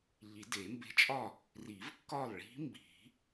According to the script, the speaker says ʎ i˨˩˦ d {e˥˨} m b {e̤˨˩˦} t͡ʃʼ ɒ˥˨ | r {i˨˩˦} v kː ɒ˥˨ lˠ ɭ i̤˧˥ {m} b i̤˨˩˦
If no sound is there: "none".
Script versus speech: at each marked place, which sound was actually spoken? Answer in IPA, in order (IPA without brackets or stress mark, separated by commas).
e˨˩˦, e̤˧˥, i˨˩˦, m